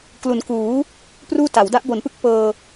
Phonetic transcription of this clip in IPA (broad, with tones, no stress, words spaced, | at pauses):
klu˩˦n kuː˩˦ | pruː˥˩ta˩˦w da˦˥ʔbo˩˦npɯ˦˥k̚ pɤː˧